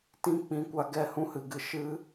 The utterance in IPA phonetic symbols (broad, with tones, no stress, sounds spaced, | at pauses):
t ĩ˧ k͡p ĩ˨ kʷ a˧ ɡ ɛ˧ h ũ˦ h ɨ˧ ɡ ɨ˧ ʃ ɨ˦